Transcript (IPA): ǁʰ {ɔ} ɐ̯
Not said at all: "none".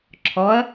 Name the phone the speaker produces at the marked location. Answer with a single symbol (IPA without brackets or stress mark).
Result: ɔ